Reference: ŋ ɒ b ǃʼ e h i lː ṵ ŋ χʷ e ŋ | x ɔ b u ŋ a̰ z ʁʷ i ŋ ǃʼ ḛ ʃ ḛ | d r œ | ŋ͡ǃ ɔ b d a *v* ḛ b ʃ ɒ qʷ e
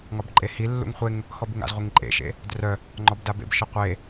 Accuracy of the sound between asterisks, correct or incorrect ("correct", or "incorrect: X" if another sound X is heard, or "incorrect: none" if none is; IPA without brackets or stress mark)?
incorrect: b